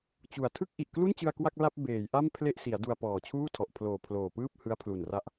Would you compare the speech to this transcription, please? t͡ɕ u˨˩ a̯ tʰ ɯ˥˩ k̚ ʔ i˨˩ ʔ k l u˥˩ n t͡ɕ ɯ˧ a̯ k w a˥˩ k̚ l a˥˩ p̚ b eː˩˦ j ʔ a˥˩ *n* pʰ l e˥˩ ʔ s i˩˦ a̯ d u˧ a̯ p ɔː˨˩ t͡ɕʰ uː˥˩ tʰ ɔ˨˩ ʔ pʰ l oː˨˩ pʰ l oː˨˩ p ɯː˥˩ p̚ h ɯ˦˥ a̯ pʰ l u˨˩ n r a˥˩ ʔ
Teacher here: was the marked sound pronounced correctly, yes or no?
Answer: no